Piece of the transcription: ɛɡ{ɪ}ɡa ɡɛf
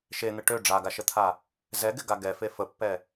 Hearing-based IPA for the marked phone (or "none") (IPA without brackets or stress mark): ɪ